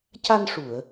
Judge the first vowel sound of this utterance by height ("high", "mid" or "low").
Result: low